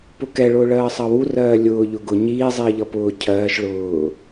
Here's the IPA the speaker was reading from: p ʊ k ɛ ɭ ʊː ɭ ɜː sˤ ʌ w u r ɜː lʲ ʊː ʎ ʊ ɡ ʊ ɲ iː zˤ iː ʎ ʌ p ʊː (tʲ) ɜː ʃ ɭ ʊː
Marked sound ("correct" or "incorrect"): incorrect